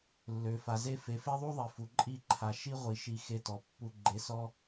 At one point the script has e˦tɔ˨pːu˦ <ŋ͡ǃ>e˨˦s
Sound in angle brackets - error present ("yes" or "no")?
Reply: yes